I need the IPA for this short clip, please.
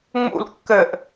ŋ͡m ṵ l kː ɘ ʔ

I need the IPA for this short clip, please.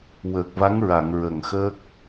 w əː˨˩ k̚ v a˧˥ ŋ ɹ a˨˩˨ ŋ ɹ ə˨˩ ŋ x əː˦˥ k̚

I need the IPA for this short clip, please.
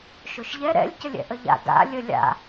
ʃ o ʃ ʎ ɛ ɾ ɛ̰ lʲ c ə lʲ ɛ̰ ʔ ə ʎ a̰ ɡ a̰ lʲ ə lʲ a̰

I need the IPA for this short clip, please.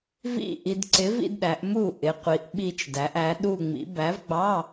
v ḭ˥˧ ʔ i˨ d ǀ ɪ˨˥ v ḭ˥ d ɗ æ˨˥ ʔ m u˥˩ ʔ ɪ˨˥ qʷ i˨˥ ʔ ɓ i˥˧ t͡ʃ d æ˨˥ ʔ æ˨˥ ɗ u˥˧ ŋ͡m ḭ˨˥ b æ˨˥ v ɡ͡b ɑ˧˥˧

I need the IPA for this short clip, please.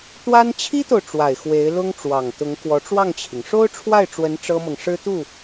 t̪ w a˥ n t͡ɕʰ i˥ t̪ o˨ ʊ̯ ʈ͡ʂ w a˨˩ ɪ̯ x w e˧˥ ɪ̯ l ʊ˥ ŋ ʈ͡ʂ w ɑ˨˩ ŋ t̪ ʊ˧˥ ŋ k w ɔ˧˥ ʈ͡ʂ w ɑ˥˩ ŋ t͡ɕʰ i˩ ŋ ʂ o˥ ʊ̯ ʈ͡ʂʰ w a˥˩ ɪ̯ ʈ͡ʂ w ə˧˥ n ʈ͡ʂ ɤ˥ m ɤ˨ ŋ ʂ ɻ̩˥ t̪ u˥˩

